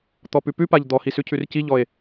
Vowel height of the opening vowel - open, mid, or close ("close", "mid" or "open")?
mid